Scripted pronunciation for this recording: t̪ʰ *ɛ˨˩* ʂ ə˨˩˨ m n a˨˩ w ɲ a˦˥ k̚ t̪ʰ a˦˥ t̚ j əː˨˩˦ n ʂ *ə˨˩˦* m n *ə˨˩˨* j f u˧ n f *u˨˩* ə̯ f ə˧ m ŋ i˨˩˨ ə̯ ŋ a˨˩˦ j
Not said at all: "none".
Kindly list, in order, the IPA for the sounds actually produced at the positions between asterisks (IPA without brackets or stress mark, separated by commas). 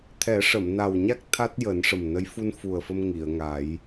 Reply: ɛ˨˩˦, ə˨˩, ə˧˥, u˨˩